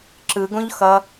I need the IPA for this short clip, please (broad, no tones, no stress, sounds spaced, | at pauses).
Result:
ǁ ɯ ɡ õ ʎ x ʌ